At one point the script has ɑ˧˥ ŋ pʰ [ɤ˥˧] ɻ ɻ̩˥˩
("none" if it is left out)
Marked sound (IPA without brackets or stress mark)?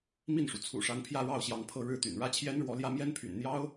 ɤ˥˧